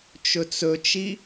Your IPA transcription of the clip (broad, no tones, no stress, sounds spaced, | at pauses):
t͡ʃ ɵ t͡s ɵ t͡ʃ i